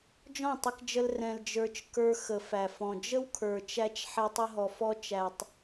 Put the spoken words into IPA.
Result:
d͡ʒɔ̃˦˨tˤə˧kd͡ʒə˧l rɛ̃˧ld͡ʒə˞˧t͡ʃ kə˞˧xə˨fæ˨fɔ̃˨ d͡ʒə˦wkʰə˞˨t͡ʃæ˧t͡ʃ ħɛ˧tˤə˧ɦɔ˨fɔ˧ t͡ʃæ˨tˤ

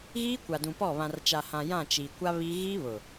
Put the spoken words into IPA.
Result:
ɣiː˦kʷa˨dũ˨pɔ˦˨ βã˨rt͡ʃa˨hã˨ jã˦˨ t͡ʃi˨ kʷa˦ βi˦ ɣi˦βʊ˨

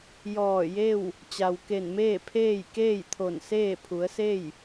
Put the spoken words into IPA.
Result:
jɔː˧˩je˥˨w | t͡ɕa˩wke˧˩nmeː˥˨pʰeː˥˨j keː˥˨jt̪ʰo˧˩nseː˥˨ pʰu˩˧ə̯se˥˨j

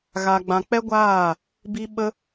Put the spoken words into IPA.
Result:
ɣa˧ɡ͡bã˧ k͡pɛ˦ɡʷaː˦˨ | bi˦ɓə˦

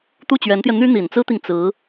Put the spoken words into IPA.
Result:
t̪u˥˩t͡ɕɥɛ˧˥nt̪jɛ˧ n̪y˥n̪i˨˩nt͡sɹ̩˥t̪i˨ŋ t͡sɹ̩˧˥

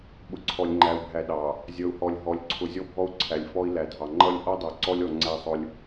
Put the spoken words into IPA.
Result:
ɓʊ˨ǀʰɔ˨lʲŋ͡ǃæ˨u̯bʱæ˨ ɗɑ˨ | zʲʌ˨u̯hɔ˨lʲ ɦɔ˨lʲǀʰʊ˨ zʲɔ˦bʱɔ˦u̯ ǀʰæ˨lʲfɔ˦i̯ læ˨dʱɑ˨ ŋ͡ǃʌ˦lʲ ʔɔ˦dˤə˞˨ ǀɔ˦lʲɔ˨ ŋ͡ǀæ˦sˤʊ˦lʲ

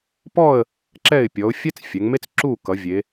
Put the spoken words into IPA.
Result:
pɔ˥˨ə̯ | ǁɛ˥˨ɪ̯ pʲɔ˩˧ʊ̯fʲɛ˥t͡s fʲɛ˩˧ŋme˥t͡s ǁu˥˨ kʌ˩˧vʲe˩˧

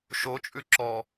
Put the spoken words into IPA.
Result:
ʃot͡ʃʼʉ ǁɔ

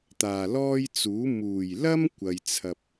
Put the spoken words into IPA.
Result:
t̪aː˨˩lɔː˥jt͡suː˨˥ muː˨˩jlɐ˥m kʷɐ˨jt͡sʰɐ˧p̚

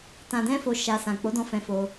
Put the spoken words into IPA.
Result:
tã˧dɛ̃˦fo˧ ʃa˧ sã˨k͡po˨˦dɔ̃˧ fɛ̃˧fo˧

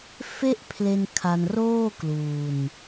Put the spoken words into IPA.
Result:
fe˥˩ʔpʰle˧n kʰa˧nroː˥˩kluː˧n

